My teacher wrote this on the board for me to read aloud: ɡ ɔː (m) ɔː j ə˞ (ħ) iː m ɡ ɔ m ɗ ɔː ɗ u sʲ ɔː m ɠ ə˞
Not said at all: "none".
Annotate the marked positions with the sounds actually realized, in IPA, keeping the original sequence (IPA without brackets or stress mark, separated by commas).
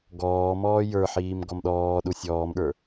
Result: m, ħ